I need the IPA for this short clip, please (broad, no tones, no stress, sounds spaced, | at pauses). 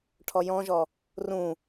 ʈʰ ɔ j ɔ̃ ʒ ɔ | r ũ